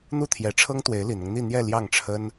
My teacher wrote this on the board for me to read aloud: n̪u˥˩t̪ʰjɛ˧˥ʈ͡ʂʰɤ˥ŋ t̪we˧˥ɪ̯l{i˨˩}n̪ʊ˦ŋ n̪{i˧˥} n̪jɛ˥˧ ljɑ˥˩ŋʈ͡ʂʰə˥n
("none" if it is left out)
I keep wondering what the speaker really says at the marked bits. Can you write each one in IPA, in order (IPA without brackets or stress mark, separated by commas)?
i˨˩, i˥˧